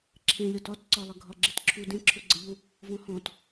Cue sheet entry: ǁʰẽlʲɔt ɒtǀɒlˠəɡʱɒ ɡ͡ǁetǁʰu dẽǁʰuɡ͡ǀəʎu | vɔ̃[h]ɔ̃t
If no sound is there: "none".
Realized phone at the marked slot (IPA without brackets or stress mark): h